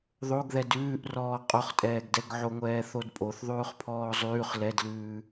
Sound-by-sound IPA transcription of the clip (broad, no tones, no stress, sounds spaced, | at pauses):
ðˤ o ɡ ð ɛ d ʉː ʔ r ɔː qʼ o χ tʼ ɛː ɡ d ɛ ɡ ʕ o ŋʷ ɛː θ o d pʼ o θ ðˤ ʉː χ pʰ ɔː zˤ ʉː χ l ɛ d l ʉː